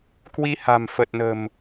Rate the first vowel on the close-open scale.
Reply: close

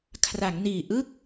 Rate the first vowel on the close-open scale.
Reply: open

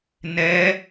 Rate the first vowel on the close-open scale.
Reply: mid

